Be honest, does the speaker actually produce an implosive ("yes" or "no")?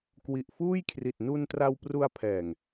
no